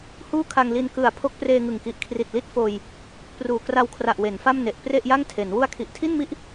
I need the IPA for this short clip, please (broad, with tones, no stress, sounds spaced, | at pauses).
h uː˥˩ kʰ a˧ ŋ l i˧ n k ɯ˨˩ a̯ pʰ o˦˥ k̚ p r eː˧ ŋ ɯ˨˩ ŋ k i˨˩ ʔ kʰ r i˨˩ t̚ l i˦˥ t̚ f oː˧ j | p r uː˨˩ k r a˧ w kʰ r a˨˩ ʔ w e˩˦ n f a˥˩ m n e˨˩ ʔ p r e˥˩ ʔ j a˥˩ ŋ tʰ e˩˦ n w u˧ a̯ kʰ i˨˩ ʔ tʰ i˥˩ n m i˥˩ ʔ